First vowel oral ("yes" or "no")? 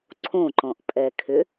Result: no